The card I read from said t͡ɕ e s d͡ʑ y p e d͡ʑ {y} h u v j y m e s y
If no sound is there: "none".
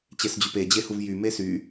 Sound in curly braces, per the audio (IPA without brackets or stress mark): e